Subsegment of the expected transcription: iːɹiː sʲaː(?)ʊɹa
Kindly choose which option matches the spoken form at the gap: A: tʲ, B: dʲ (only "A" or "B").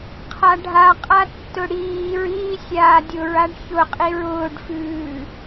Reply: B